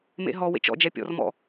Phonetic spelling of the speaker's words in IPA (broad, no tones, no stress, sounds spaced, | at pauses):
m ḛ ɦ ɔ w ḛ t͡ʃ ɔ̰ d͡ʒ ɛ pʲ ɔ̰ r m ɔ̰